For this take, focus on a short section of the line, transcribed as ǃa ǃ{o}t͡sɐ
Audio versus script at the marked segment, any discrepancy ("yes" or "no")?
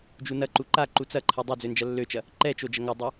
yes